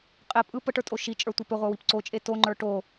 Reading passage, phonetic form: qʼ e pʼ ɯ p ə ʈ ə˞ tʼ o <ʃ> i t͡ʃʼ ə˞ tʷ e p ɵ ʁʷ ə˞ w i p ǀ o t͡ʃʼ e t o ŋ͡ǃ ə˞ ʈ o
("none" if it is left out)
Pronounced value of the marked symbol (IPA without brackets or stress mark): ʃ